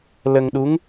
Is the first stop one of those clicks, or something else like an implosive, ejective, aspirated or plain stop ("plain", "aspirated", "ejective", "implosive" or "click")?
implosive